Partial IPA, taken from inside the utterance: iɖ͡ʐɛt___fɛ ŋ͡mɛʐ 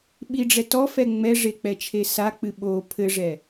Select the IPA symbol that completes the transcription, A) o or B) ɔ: B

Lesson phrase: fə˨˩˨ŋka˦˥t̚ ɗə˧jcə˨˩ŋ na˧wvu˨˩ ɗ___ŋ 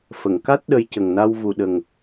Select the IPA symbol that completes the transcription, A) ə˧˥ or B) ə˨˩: B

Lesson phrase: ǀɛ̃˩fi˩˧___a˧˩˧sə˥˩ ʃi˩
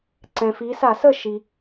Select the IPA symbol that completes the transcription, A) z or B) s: B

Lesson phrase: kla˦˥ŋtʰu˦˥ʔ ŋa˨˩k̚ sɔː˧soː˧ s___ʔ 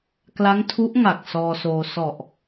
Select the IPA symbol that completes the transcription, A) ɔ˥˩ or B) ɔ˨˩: B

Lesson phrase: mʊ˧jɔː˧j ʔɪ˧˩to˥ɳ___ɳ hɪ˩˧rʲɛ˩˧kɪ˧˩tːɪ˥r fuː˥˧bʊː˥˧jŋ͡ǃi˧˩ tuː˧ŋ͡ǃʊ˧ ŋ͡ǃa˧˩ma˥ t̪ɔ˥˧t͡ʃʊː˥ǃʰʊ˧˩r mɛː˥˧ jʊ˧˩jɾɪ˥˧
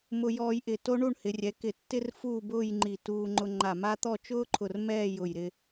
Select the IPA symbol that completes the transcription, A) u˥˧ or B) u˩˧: A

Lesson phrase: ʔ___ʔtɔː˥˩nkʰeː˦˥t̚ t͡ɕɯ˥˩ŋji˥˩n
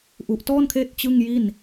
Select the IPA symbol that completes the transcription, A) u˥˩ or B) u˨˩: B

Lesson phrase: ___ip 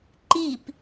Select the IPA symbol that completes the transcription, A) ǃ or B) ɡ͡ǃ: A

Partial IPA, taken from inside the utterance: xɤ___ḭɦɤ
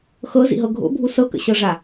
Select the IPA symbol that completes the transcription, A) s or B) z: B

